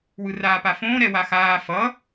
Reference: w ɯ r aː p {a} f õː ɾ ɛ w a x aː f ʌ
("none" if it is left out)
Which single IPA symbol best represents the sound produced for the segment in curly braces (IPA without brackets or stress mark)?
a